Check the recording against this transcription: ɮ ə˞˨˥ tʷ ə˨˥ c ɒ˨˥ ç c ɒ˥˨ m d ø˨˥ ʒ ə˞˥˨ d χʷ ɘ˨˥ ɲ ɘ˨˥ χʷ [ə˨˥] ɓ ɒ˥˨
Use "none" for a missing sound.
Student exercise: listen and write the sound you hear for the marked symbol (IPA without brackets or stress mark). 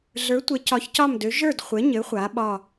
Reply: a˨˥